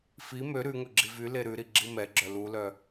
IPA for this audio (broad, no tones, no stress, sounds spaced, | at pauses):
f i m ø ɾ ʉ ŋ ɵ ɡ͡ǁ i v y l e ɾ ʉ ɾ i ɡ͡ǁ i m ɛ ɡ͡ǁ œ l u l œ